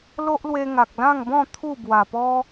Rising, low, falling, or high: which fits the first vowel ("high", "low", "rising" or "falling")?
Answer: high